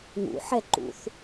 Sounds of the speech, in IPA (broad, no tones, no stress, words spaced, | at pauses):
ŋṵħɛǃṵθ